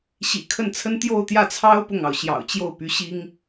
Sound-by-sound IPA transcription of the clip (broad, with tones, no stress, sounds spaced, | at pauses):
ɕ ḭ˨˩ kʰ ə˥˩ n t͡sʰ ə˥ n t̪ j o˥˧ ʊ̯ t̪ j ä˥˩ t͡sʰ ɑ˥ ʊ̯ p ʊ˥˩ ŋ ɑ˩ ʊ̯ ɕ j ɑ̰˨˩ ʊ̯ t͡ɕ j o˥˩ ʊ̯ p y˧˥ ɕ i˥ ŋ